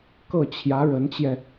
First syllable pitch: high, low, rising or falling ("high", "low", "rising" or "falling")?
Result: falling